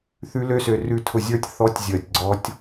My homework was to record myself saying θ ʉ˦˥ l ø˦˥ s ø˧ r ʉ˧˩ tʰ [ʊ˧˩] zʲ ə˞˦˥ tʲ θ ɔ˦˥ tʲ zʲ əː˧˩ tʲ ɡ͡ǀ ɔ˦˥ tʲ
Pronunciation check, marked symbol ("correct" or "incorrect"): correct